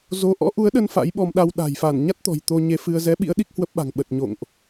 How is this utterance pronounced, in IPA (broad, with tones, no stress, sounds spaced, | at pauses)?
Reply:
z o˧ ʔ ɔ̰˧˥ ʔ u˨˦ ə̯ ɗ ə˧ n f a̰˧˥ j ɓ ɔ˧ m ɗ a˧ w ɗ a̤˨˩ j f a˧˩ n ɲ a˦˥ t̚ t̪ ɔ̤˨˩ j t̪ o˧ ɲ e˧ f ɨ˧ ə̯ z ɛ˨˦ ɓ ḭ˧˥ ə̯ ɗ i˦˥ k̚ h w ə˦˥ p̚ ɓ a̤˨˩ ŋ ɓ ə˨˩ t̚ ɲ o̰˧˨ ŋ ʔ